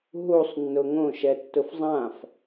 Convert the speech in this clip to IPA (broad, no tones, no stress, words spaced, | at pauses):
ɦusˤnːʊ ŋõʃɛtːʊf zˤãf